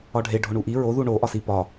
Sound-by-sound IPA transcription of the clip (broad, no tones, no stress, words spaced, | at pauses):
ɒɖʱe ɖʱoɳuʔi ɹoðu ɳo ʔɒsi pɒ